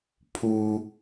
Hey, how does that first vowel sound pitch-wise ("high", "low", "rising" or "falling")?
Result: high